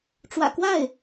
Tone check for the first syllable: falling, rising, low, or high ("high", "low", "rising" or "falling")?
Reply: low